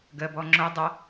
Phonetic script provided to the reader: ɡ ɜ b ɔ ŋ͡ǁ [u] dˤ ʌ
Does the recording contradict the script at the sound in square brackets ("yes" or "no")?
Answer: yes